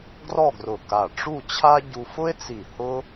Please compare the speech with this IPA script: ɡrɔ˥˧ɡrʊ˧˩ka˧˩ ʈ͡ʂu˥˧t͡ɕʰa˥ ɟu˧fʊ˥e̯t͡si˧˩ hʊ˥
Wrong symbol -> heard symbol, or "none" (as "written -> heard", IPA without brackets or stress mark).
none